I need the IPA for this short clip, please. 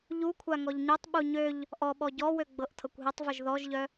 ʎukʷʰa ŋɔʎɲøtˤɓu ɲøʎ | ʔɔɓɔ ɟɔwø ɡ͡bɤʔtʰɤkʷɦɵtˤvɵʒ ðɔʒʎœ

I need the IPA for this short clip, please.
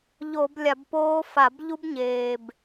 ʎo˧˩˧blʲa˧˩˧bpoː˦˥fa˧˩˧b ʎu˦˥bɲeː˨˩b

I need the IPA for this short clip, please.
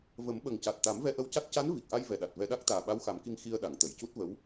və˨˩˦m ɓə˨˩ŋca˨˩t̚t̪a˨˩˦m vɛ˧ʔə˧wca˦˥t̚ ca˧˥n vi˨˩k̚ʔa˧j vɛ˨˩ɗa˨˩t̚vɛ˧ɗa˦˥k̚ t̪aː˨˩ɓa˧˥wxa˨˩˦mki˧ŋ xi˧ə̯ɗa˨˩˨ŋ t̪ə˨˩˨jcu˦˥t̚və˧˥w

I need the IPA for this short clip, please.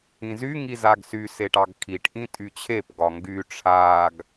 ĩzy ŋizaɡsy seʈɑɡkʰiʈ ʔĩtʼyt͡ɕʰep ɡɒŋɡy ʈ͡ʂʰaɡ

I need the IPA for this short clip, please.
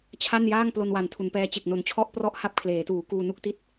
t͡ɕʰa˥˩njaː˥˩ŋ plo˧nwa˨˩n tʰu˩˦npɛː˦˥ t͡ɕe˨˩k̚no˨˩nt͡ɕʰɔ˥˩ʔprɔ˥˩ʔ ha˥˩p̚kʰleː˩˦tuː˩˦ kuː˧nu˥˩k̚ti˥˩t̚

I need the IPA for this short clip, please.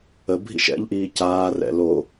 ə bʱḭʃɛ̰ʎʔiː caːrɛ̰ lo

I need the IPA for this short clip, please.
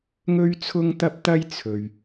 ŋɵ˥ɥt͡sʰʊ˥ŋt̪ɐ˥p̚t̪ɐ˥j t͡sʰɵ˨ɥ

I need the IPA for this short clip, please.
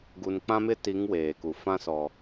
ɡu˨nk͡pã˦mɪ˦ti˨˦ŋ weː˨ku˨ fã˦sɔ˨

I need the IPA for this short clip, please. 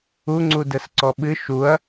uŋ͡ǀu dɛsǀɔɓɨ ʃuɐ̯

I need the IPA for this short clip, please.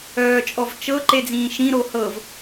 œːt͡ʃʼɔvt͡ʃɤ ǃed͡zĩːʃĩ ɾohɤv

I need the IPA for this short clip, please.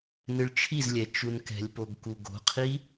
nɨɭt͡ʃʰizlʲɛ t͡ʃunkɛ̤lʲpoɡ kuɡo̤qʰi

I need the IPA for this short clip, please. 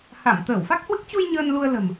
ha˧˩m t̪əː˧˩wfa˦˥k̚hwɨ˦˥k̚ t͡ɕu˧j ɲəː˧nlu˧ə̯ lə̤˨˩m

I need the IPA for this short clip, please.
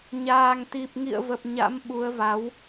ɲaː˨˩ŋt̪i˨˩p̚ ŋḭ˧˨ə̯və˨˩p̚ ɲa̰˧˥mɓu˨˦ə̯va˨˦w

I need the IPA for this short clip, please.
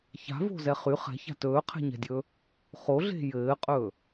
ça̤vo̤zɛ χyχ ɛ̤ça̤ tɵːqʰɛ̤ɲɛ̤dʲɵ | χoɮe̤ jɘːqʼɵ

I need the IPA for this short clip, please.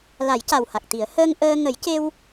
la˨˩˦jca˨˩wha˨˩k̚t̪i˨˩˦ə̯ həː˧ŋʔəː˧ ŋə˨˩˦jce˧w

